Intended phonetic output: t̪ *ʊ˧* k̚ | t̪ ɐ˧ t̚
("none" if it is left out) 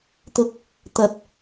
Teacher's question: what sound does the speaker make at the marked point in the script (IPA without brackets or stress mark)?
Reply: ʊ˧